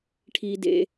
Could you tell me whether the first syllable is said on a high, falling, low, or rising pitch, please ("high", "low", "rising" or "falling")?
high